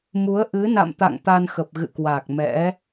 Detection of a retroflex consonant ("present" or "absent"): absent